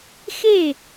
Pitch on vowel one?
falling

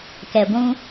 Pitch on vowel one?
low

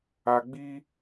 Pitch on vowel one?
low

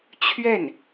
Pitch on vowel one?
falling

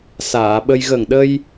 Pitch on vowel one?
low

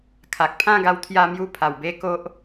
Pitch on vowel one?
low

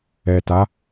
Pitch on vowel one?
low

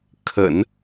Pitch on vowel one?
low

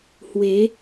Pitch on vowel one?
rising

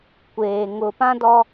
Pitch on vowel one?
low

